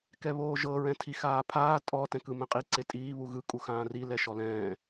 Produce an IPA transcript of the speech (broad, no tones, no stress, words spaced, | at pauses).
kɛβoːʒɤ ɹɛ̃tʰixaːpʰaː tʼɔ tɛ̃kɯmɛ̃qʼi ǀetʼiː βuɣɯ kʼuxãːri lɛʃɔlɛ̃ː